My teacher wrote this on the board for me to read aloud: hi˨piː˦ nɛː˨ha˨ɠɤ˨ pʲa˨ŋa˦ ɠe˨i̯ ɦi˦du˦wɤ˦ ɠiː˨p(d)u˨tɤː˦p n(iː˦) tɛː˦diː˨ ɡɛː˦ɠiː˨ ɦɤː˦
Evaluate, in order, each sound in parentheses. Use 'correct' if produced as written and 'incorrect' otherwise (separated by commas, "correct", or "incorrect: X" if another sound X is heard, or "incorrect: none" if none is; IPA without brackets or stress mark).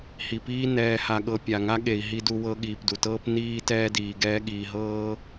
correct, correct